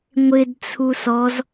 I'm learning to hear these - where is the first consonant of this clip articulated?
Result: velum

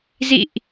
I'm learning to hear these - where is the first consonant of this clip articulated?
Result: tongue tip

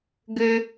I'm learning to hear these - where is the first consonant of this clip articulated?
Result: velum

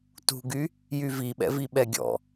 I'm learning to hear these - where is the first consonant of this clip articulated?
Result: tongue tip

